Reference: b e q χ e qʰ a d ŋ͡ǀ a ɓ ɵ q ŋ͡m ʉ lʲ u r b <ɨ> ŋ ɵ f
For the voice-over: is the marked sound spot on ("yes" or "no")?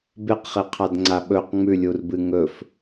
yes